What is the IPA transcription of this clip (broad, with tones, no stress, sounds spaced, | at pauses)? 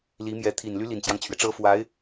l i˧˥ m j ɛ˧˥ t̪ʰ i˨˩ n l y˧˥ l i˨˩ n t͡ɕ j ɑ˦ ŋ t͡ɕʰ ɥ ɛ˩ ʈ͡ʂ ɤ˥ f w a˧˥ ɪ̯